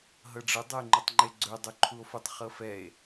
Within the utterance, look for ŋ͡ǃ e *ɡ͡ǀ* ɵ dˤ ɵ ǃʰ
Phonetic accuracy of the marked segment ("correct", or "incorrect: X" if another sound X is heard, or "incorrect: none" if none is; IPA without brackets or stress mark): correct